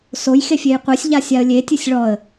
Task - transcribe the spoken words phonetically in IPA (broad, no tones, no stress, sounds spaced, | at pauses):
s o j x e fʲ e j qʷ e sʲ ʎ a sʲ a ə̯ lʲ e tʲ ɨ sʲ ɭ ɔ ə̯